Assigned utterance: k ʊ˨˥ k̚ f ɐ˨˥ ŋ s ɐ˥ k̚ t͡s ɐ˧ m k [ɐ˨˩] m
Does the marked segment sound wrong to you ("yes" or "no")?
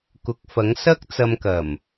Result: no